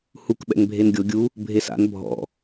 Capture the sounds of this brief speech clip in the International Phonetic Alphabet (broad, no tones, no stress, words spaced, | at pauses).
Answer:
huk ɓɛ̰ŋbʱenɡʲo ɡʲu | bʱesa̰n bʱɔ̰